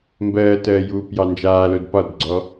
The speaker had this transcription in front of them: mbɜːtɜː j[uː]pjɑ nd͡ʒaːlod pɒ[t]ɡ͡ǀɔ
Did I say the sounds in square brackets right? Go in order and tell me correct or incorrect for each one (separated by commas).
correct, incorrect